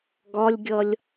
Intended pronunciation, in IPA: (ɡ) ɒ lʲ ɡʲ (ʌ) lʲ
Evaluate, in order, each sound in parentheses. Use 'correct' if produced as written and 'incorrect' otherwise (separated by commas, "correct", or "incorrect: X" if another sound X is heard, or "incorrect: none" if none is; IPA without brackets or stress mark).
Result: correct, correct